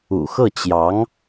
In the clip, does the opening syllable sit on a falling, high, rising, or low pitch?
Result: low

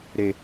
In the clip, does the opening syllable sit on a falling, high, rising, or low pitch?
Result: low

